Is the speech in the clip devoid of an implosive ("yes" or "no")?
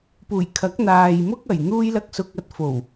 yes